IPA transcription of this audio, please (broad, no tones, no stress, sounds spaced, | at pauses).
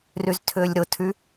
r y z tʰ ʏː lʲ ɾ ʊ tʰ y